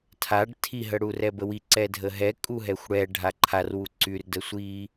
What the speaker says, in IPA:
tʰ a ɖ tʰ i ɦ ə ɽ u r ɛ b ə w i ǀ ɛ dʱ ə ɦ ɛ kʼ u ɦ ɛ xʷ ɽ ɛ ɖʱ a ǃʰ a r w u ǀ y r d ə sʷ i

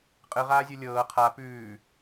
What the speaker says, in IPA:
qʼ ɯ ʁ aː zʲ o lʲ ɤː qʰ a p ʉː

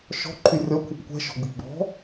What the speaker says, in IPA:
ʃ ɔ̤ ǃʰ y rʲ ɔ kʷʰ i p kʷ ɛ̤ ʃ ɔ̤ ɡ͡b i̤ ɡ͡b ɔ̤

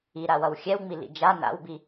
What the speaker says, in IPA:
i ɾ a w ʌ w xʲ ɛ w ŋ͡m i l ḭ d͡ʒ a n a̰ w b i

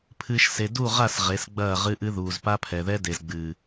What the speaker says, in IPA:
pʰ ɨː˨ ʃ s e˨ d u˦˨ ʁ a˦˨ s ʁ e˨˦ s ɡ͡b ɐː˦˨ ʁ ɨ˦ ʔ ɨ˦ ð uː˨ z p a˦ pʰ ɛ˨ ð ɛ˦ d e˨ z ɡ͡b ɨː˨

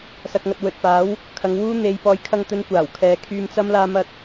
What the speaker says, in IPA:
s ɐ˨ k̚ ŋ ɐ˨ t̚ w ɵ˨ t̚ p aː˨˥ w | kʰ ɐ˨˧ ŋ w uː˥ n̪ e˧ j p ɔː˨ j kʰ ɐ˧ ŋ t̪ ɵ˨˧ n kʷ aː˨˩ w kʰ ɛː˨ kʰ yː˧ m t͡s ɐ˥ m l aː˧ m ɐ˧ t̚

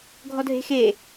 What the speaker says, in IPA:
ɡʱ ɔ dʱ e̤ x e

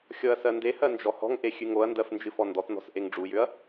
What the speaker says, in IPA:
xʲ ɔ ɐ̯ s ɜ n d e h ɜ n d͡ʒ ɔ h ɔ̤ ŋ ʔ e xʲ ʉ ŋ o ɐ̯ n d ɜ f n d͡ʒ ɨ f ɔ n d ɔ t n ɔ̤ s ʔ e ŋ ɖ͡ʐ u j ʏ ɐ̯

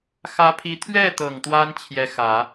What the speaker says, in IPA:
x ä˧˥ pʰ i˧˥ t̪ʰ ɥ ɛ˥˩ t̪ ɤ˨˩ ŋ t̪ w a˥ n t͡ɕʰ j ɛ˧˥ x ä˨˩˦

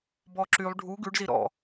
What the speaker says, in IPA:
b ɔ ǁ y lˠ ɖʱ u ɡ ʉ ɖ z i ɾ ɔ̰

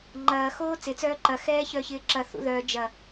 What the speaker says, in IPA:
ŋ͡ǃ ɐː x oː t͡s ɪ t͡s œː ǃ ɐ x ɛː ç œ ç ɪː ǁ ɐ θ ṵ ð œ d͡ʒ ɐ

